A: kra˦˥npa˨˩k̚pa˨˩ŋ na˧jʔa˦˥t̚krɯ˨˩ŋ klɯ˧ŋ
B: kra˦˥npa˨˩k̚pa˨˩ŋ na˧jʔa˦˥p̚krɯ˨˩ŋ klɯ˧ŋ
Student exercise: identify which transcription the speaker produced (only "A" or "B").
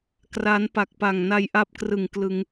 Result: B